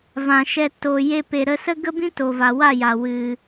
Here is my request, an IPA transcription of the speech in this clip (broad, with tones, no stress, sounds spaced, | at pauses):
v ã˨ ʃ ɛ˧ t o˨ j e˧ p e˨ ɾ ə˧ s ə˦ ɡ ə˦ b ĩ˦ t o˨ v a˨ w a˦˨ j a˨ w ɨ˨